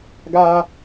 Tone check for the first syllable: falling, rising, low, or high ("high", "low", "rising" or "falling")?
high